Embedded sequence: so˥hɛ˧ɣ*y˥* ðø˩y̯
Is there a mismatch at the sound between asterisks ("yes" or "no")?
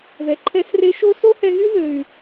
no